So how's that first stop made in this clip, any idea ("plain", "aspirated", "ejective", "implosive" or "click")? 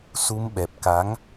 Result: implosive